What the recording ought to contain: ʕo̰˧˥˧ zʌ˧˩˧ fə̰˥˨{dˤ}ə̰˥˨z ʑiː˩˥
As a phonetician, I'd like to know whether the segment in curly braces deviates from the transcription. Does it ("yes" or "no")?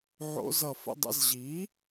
no